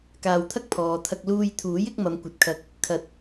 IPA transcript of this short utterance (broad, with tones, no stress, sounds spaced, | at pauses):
k aː˧ w t̪ʰ ɐ˥ k̚ pʰ ɔː˨ t̪ʰ ɐ˧ k̚ l uː˧ j t̪ʰ uː˨˥ j ɪ˨˥ k̚ m ɐ˨˧ m kʷ ɐ˨ t̚ kʰ ɐ˨˥ k̚ | kʰ ɐ˨˥ t̚